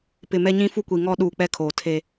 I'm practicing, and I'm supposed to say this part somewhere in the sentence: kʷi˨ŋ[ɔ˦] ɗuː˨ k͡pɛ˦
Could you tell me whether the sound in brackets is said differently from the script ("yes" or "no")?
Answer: no